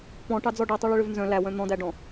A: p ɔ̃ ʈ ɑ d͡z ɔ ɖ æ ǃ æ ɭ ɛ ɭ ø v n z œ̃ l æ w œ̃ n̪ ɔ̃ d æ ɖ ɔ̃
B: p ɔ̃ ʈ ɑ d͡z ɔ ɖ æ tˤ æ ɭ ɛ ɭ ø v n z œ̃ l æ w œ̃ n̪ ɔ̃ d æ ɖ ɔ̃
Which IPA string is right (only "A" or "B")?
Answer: B